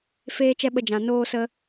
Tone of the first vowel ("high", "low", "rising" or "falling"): high